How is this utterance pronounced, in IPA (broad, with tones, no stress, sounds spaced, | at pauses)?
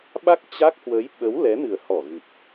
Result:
ɓ a˦˥ k̚ t͡ɕ a˦˥ k̚ h w ə˨˦ j ɓ ə˨˦ w l ɛ˨˦ n ɨ˨˩ ə̯ h ɔ˧˩ ɣ ɨ˨˩ p̚